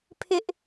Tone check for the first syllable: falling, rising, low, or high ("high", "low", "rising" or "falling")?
high